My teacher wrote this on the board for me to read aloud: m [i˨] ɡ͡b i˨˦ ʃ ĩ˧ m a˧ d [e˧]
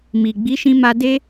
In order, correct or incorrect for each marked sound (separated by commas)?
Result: correct, incorrect